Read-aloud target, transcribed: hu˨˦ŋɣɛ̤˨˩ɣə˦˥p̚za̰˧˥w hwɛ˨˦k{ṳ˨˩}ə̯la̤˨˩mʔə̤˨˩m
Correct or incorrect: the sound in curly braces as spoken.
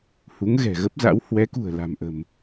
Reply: correct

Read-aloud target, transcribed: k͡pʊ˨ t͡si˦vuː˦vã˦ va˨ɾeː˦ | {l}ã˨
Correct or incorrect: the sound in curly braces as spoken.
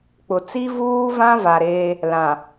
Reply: correct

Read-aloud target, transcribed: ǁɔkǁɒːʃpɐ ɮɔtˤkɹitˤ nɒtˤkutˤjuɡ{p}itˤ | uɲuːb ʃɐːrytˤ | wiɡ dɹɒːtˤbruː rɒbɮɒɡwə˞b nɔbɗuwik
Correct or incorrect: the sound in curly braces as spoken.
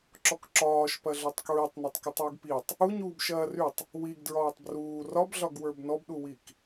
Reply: correct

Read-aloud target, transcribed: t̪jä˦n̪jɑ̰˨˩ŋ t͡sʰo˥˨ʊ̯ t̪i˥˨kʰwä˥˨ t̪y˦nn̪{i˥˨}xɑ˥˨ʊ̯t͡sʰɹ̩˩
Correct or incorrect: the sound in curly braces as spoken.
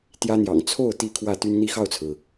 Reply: incorrect: i˦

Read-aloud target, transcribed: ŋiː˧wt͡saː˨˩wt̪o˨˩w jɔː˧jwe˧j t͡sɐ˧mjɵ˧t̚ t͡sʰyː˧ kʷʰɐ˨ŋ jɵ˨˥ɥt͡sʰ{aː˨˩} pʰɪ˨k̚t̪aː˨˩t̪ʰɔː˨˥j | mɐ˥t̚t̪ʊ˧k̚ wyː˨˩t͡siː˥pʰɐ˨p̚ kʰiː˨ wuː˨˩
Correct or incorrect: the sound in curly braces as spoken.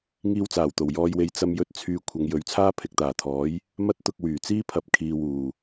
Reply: incorrect: aː˥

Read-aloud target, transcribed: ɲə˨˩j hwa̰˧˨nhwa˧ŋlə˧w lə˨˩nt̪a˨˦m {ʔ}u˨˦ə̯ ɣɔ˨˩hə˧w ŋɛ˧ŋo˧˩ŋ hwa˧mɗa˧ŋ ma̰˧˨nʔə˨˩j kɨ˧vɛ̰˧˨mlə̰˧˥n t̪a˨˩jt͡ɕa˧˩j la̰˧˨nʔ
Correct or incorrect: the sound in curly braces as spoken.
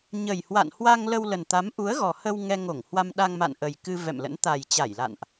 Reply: correct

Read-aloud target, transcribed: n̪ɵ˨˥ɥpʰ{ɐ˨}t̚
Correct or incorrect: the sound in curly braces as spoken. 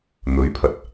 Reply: incorrect: ɐ˨˥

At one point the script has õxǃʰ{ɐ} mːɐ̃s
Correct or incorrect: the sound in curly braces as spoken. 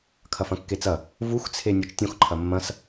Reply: correct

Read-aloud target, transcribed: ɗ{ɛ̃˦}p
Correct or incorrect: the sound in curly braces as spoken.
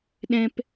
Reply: correct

